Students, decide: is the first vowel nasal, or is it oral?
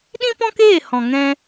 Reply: nasal